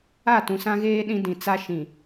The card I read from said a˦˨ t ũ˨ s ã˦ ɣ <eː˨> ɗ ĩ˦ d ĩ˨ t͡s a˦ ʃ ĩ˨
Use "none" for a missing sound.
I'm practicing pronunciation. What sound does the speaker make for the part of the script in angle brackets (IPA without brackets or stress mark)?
eː˦